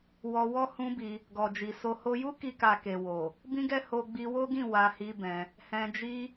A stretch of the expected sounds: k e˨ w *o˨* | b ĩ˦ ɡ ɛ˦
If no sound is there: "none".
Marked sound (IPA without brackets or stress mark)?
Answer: o˨